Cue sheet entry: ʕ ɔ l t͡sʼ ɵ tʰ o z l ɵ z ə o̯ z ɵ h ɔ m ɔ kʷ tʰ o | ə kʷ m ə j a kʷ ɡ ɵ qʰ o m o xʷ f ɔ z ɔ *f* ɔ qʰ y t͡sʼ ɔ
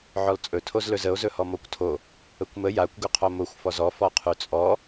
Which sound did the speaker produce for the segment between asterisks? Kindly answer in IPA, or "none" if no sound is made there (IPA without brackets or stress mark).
f